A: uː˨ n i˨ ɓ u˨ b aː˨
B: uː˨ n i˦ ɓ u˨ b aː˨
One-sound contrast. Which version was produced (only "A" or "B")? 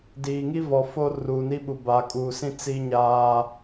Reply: B